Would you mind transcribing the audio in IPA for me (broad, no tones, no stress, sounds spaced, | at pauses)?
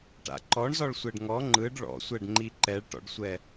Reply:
ʈ a̰ ǃ ɔ ɳ z ɔ ɭ sʷ ɛ ɖ ŋ ɔ ŋ͡ǃ ɯ ɖ ɭ ɔ̰ sʷ ɛ ɖ ŋ͡ǃ i ǃ ɛ ɭ ʈ ɔ̰ ɖ sʷ ɛ